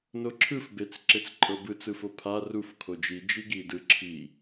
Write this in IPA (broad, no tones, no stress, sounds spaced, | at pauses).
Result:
n o ǁʰ ɯ f b e t͡s ǁ e t͡s ǃʼ ɤ b ɯ t͡s ɯ f o pʰ a r u f kʰ o d͡ʒ i d͡ʒ i ɡ i d ɯ ǁʰ i